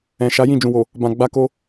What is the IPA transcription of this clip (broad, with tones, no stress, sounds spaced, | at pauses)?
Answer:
ɛ̃˨ ʃ a˨˦ j ĩ˦˨ d͡ʒ ũ˨ w o˨ | b ã˨ ɡ͡b a˧ k o˧